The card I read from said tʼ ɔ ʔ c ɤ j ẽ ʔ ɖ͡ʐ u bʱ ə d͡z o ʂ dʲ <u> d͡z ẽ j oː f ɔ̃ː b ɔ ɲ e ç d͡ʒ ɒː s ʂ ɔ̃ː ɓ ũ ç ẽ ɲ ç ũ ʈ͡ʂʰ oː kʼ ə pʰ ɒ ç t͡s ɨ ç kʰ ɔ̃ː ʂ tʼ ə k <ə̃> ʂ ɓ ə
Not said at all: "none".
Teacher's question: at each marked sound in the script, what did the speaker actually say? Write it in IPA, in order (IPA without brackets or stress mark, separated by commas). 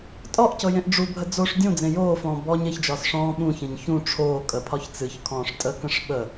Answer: ũ, ə̃